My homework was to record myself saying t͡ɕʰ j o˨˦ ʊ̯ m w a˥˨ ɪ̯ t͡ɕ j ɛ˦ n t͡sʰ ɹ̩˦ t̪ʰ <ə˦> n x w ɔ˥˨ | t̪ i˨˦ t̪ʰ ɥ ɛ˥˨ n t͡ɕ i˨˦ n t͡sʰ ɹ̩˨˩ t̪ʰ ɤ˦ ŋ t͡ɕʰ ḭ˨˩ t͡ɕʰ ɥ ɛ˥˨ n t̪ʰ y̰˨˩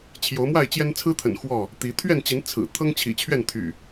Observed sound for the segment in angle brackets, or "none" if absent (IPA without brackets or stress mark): ə̰˨˩